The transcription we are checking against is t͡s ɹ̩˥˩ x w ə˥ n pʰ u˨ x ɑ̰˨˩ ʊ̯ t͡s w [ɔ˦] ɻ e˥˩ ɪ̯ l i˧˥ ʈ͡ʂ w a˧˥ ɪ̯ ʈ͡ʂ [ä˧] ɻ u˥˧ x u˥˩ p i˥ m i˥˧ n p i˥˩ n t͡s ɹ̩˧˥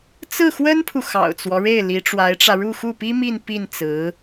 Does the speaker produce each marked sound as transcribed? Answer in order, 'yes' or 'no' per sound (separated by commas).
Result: yes, yes